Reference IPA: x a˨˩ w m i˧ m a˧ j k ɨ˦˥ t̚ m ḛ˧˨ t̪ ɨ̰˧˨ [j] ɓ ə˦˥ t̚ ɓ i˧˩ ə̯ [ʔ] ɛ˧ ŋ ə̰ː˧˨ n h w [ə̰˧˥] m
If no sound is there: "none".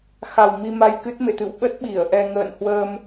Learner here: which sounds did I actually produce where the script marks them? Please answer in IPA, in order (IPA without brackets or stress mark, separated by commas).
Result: w, ʔ, ə˧